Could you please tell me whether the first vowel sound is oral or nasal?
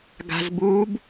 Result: oral